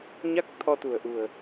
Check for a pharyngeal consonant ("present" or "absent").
absent